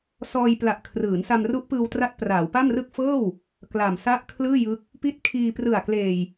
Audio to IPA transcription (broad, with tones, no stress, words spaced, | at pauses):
sɔː˧jpla˨˩ʔ kʰrɯː˩˦nsa˧m ru˦˥ʔpɯː˧w tra˦˥t̚praː˩˦wpa˥˩mrɯ˥˩k̚ fɤː˥˩w | kla˨˩msa˥˩ʔkʰlɯː˥˩ jɯ˦˥k̚ | pi˦˥t̚kʰiː˧prɯ˨˩a̯ kleː˨˩j